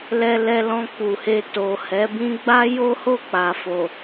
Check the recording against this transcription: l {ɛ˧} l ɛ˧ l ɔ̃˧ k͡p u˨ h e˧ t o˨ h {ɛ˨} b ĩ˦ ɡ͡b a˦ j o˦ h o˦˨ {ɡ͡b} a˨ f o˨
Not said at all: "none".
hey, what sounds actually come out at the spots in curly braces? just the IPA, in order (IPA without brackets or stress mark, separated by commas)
ɛ˧, ɛ˨˦, k͡p